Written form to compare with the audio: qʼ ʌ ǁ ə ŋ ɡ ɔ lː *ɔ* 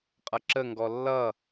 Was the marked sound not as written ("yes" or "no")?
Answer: yes